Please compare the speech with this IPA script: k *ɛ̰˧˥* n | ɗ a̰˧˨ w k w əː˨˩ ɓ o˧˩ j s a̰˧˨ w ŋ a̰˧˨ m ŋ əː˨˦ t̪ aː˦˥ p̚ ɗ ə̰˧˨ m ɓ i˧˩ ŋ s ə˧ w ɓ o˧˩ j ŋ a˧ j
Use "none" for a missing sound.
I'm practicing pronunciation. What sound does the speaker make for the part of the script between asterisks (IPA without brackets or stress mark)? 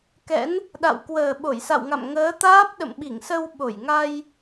ɛ̰˧˥